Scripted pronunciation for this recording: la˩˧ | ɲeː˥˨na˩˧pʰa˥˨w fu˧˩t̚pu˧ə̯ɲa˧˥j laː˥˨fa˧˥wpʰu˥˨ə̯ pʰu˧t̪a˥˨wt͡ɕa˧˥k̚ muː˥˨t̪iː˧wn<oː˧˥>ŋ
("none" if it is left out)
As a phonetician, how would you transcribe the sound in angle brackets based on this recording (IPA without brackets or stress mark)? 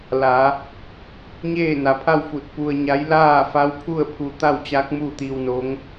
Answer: o˧˥